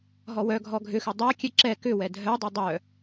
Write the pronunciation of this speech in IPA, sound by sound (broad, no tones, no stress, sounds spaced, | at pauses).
ɦ ɔ w œ ɡʱ ɔ ɡʱ ʏ x ʏ dˤ a kʲ ɛ ǁ ɛ k ʏ w ɛ dʱ œ dˤ u dˤ œ